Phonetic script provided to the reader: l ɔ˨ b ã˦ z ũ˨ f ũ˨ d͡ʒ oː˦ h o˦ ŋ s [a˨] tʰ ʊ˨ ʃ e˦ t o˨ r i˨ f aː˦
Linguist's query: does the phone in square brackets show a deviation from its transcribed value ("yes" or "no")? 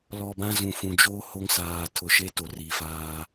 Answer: yes